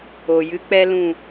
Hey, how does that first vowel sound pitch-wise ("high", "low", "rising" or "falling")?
low